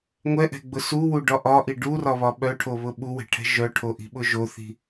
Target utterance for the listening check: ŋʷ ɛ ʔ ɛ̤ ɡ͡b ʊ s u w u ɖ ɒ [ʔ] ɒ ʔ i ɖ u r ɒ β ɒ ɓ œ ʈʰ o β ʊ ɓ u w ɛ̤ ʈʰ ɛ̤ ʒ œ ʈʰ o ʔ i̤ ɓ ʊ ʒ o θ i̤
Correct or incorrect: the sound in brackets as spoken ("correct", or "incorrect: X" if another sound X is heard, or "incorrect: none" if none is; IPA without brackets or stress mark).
correct